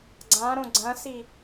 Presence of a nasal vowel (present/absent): present